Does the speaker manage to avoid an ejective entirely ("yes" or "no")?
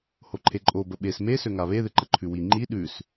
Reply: no